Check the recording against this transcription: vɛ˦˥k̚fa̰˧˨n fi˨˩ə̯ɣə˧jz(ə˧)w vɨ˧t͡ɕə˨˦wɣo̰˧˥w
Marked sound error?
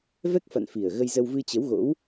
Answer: no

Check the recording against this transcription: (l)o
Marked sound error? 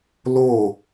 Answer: no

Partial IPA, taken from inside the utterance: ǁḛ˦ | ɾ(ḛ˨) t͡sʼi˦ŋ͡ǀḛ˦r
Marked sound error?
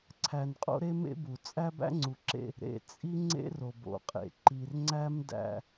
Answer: no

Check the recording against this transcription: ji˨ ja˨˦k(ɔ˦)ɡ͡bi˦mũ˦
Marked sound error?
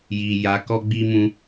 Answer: no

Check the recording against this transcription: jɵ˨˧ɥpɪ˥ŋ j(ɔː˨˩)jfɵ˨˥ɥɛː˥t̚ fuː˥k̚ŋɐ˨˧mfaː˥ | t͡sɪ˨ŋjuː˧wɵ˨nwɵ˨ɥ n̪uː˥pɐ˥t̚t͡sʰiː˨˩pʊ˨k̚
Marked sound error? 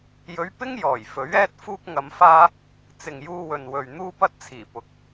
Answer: no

